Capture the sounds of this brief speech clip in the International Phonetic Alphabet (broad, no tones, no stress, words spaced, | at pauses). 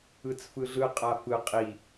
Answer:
ɯt͡sfɯɮɯ qʼafɯ qʼi